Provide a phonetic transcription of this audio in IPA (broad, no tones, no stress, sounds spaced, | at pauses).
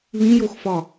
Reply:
β ĩ j o x f ɒ